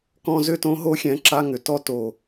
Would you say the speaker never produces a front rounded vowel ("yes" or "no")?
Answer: no